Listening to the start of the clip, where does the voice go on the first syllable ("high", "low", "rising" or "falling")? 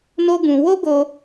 high